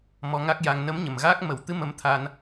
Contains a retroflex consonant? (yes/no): no